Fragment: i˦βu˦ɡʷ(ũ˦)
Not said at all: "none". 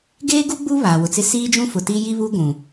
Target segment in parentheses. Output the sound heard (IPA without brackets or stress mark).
ũ˨